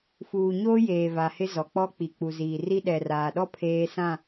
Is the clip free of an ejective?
yes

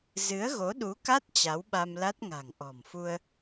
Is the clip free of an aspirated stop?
yes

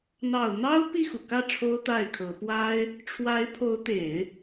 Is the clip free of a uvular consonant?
yes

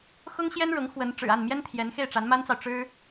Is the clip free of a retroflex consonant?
no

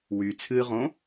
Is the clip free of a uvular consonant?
no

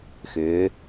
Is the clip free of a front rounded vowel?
no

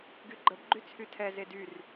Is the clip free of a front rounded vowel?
no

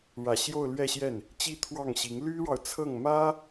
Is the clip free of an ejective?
yes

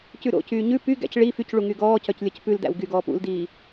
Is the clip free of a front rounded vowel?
no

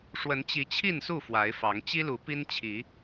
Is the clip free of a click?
yes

